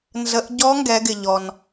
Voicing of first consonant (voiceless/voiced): voiced